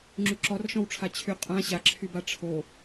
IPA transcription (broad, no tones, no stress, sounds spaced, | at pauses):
ŋ͡ǁ y ǁ ɔ r ʃ ɔ̃ w ʈ͡ʂʰ a t͡ɕʰ y qʼ ã ɕ a ǁʰ y b a ʈ͡ʂʰ o